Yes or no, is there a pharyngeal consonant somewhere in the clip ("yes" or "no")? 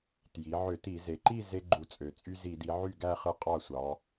yes